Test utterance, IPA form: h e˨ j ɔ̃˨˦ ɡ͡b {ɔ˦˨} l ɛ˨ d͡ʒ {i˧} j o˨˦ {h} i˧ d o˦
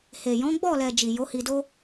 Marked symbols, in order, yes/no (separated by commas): yes, no, yes